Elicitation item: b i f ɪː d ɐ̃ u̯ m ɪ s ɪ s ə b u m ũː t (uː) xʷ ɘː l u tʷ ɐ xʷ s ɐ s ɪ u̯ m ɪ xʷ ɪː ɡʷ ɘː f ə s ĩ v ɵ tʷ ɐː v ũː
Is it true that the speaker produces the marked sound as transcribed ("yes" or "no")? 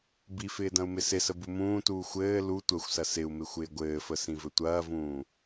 yes